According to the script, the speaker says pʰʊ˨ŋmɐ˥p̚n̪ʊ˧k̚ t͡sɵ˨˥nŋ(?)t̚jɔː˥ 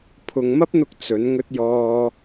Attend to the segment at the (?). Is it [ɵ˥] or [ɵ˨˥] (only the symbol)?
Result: ɵ˥